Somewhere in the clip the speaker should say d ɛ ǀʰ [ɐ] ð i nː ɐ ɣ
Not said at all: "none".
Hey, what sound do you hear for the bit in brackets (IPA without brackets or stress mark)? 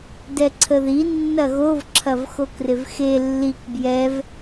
ə